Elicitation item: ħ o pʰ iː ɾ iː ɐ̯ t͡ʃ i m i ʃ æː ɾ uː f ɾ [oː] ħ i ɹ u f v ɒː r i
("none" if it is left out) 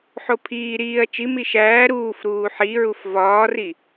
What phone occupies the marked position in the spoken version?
uː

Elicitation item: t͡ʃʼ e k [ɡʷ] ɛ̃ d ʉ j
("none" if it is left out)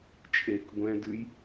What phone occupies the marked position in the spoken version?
ɡʷ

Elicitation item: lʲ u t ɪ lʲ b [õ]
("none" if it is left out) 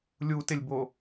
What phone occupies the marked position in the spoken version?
o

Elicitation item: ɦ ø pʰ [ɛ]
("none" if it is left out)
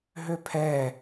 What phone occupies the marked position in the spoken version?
ɛ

